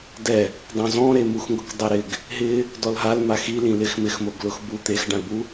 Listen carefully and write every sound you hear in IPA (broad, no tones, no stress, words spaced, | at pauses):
dɛ | dˤõzɔ̃ɾe muxŋɡʊkdˤɛɾɪɡ | ɦɪ | dɔlɦalma xi lĩlɪx mɪxmoɡ lʊxbu t̪ex ɖãlbu